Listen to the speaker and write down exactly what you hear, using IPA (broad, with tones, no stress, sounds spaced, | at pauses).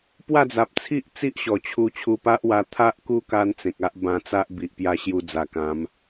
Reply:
p w a˥˧ d͡z a˨ p̚ t͡sʰ i˦ ʔ t͡s i˦ ʔ ɕ ɔ˨˩ t͡ɕʰ u˧ t͡ɕʰ u˧ p a˦ ʔ w a˧ t̪ʰ a˦ ʔ k u˦ k a˦ n t͡s ẽ˨ k̚ a˦ ʔ b ã˧ t͡s a˦ ʔ b i˨ ʔ p j a˦ ɕ j u˧ d͡z a˨˩ k ã˨˦ m